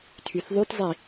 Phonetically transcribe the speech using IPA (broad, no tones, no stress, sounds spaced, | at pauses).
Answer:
tʰ y θ ðˤ ʉ t zˤ i